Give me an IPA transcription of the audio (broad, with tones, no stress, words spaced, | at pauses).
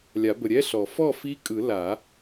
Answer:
lʲa˨˩˦bə˨ɾʲɛ˧˥˧ɬɔ˨˩˦ fɔ˥˩fi˧˥kʼɯ˨˩˦ la˨˩˦